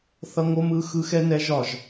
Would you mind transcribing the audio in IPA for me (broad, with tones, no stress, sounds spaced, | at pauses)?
θ ʌ˦ ŋ o˦ m ɯ˦ x ɯ˦ x ɛ˦ n ɛ˦ ʒ ɒ˦˨ ʒ